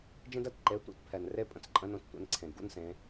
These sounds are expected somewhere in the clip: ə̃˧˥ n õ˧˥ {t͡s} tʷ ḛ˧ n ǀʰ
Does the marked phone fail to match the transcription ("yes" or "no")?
no